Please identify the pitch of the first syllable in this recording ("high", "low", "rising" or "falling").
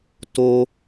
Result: high